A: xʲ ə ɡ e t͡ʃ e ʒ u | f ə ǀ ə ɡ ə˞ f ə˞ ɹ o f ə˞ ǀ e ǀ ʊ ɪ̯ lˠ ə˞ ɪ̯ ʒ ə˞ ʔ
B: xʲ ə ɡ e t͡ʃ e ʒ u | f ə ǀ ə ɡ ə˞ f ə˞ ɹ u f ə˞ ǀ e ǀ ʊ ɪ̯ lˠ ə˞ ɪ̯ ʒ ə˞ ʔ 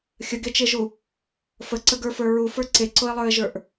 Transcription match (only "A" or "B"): B